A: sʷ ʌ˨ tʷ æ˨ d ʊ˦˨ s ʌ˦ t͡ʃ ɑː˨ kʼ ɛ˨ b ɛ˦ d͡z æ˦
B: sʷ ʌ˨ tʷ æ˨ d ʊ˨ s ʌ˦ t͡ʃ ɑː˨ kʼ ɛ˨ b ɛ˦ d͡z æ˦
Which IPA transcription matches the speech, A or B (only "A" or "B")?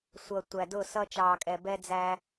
A